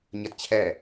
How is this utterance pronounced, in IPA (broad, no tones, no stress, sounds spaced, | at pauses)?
ɲ ɐ t t͡ɕʰ ɛ